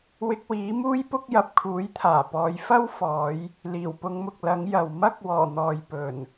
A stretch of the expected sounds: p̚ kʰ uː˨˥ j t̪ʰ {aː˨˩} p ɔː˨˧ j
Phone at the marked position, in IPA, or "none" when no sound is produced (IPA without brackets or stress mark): aː˨˩